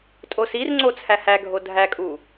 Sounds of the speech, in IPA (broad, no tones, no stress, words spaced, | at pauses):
tʼosirŋ͡ǀo t͡sʰæhæɡʱo dʱækʼu